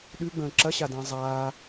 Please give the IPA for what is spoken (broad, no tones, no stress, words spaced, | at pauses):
ɗʉɡ͡bə̃ː ǁɐɕadə̃ː zˤaː